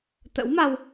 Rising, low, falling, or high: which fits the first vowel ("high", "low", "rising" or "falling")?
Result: rising